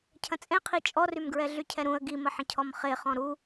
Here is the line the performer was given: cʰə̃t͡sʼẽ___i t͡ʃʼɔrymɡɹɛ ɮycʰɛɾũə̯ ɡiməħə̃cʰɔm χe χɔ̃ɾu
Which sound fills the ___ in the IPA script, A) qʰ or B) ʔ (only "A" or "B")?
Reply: A